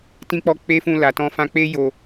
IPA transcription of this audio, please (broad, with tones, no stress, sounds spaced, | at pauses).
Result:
t ĩ˧ k͡p ɔ˧ k͡p e˦ f ũ˦˨ l a˨ t ɔ̃˧ f ã˧ k͡p e˦ j o˧